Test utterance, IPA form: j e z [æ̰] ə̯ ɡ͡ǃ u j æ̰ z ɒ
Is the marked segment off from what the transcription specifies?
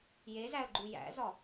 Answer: yes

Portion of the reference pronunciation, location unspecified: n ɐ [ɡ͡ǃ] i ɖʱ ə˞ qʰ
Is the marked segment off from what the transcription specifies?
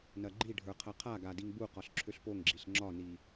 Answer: no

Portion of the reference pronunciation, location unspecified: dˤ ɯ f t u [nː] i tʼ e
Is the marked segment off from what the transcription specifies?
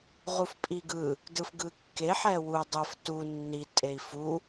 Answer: no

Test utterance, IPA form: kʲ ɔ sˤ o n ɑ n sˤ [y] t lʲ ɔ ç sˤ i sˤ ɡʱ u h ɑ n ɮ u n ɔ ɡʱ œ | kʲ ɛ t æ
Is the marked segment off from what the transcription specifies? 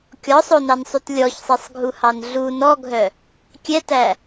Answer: no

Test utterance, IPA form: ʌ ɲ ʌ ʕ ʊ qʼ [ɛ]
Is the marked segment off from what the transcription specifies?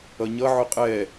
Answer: no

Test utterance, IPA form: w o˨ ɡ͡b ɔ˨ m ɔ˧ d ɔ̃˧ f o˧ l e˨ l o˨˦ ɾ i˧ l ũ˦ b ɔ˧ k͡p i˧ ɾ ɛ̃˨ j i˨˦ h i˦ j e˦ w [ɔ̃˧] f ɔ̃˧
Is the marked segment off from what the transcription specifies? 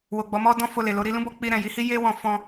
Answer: no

